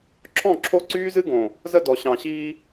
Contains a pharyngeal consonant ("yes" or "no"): no